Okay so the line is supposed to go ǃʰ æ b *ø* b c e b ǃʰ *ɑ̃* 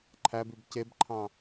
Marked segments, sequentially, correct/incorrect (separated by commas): incorrect, correct